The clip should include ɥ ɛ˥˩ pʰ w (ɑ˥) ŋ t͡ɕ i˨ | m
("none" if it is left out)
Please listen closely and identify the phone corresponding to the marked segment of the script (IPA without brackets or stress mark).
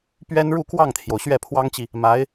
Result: ɑ˥